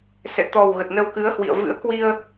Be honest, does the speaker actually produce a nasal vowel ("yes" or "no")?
no